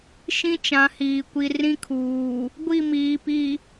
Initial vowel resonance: nasal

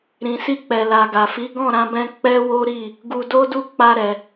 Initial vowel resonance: nasal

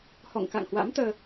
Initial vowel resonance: oral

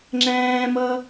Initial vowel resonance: nasal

